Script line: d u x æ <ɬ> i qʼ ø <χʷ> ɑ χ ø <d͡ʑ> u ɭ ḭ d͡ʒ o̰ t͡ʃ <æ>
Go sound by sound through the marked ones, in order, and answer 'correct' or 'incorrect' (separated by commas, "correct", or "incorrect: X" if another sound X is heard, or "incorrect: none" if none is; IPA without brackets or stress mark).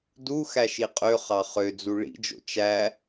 incorrect: ʃ, incorrect: χ, incorrect: d͡z, correct